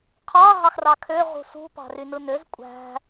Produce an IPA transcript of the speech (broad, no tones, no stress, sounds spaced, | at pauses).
qʰ ɑ ɦ ɑ x r ɑ kʰ ø ʁ ṳ s ṳ p ɑ̤ r y n ɯ n ø z kʷʼ æ̤